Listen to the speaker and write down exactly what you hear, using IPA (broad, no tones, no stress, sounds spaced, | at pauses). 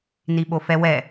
n i ɓ o f ɛ w ɛ